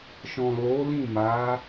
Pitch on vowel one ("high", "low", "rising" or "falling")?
low